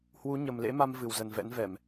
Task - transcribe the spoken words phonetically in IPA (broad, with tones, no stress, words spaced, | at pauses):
hwu˨˦ɲə˨˩mlḛ˧˥ma˧m vɨ˨˩wzə˨˩nvɛ̰˧˥nvɛ˧˩˨m